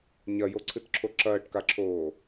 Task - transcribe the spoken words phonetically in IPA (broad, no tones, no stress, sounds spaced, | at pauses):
ɲ ɐ j o ǀʰ ɨ t ǁʰ o ǁ ɐː ʈ k a ǁʰ oː